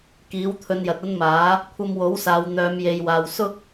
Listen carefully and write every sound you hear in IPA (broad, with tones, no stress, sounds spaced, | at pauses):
k iː˨˥ w t̪ʰ ɵ˧ n j ɐ˨ t̚ ɐ˥ n m aː˨˥ | kʷʰ ɐ˧ m w o˨˥ w s aː˨ w n̪ œː˨˧ m j e˨ j w aː˨ w s ʊ˥ k̚